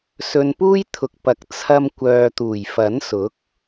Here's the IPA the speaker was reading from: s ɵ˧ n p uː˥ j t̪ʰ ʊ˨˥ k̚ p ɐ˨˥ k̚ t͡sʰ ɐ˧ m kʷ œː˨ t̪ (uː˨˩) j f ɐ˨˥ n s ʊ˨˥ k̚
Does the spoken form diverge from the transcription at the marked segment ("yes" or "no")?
no